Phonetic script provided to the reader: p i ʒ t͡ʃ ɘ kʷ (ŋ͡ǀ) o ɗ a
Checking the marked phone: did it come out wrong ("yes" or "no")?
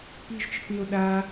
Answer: yes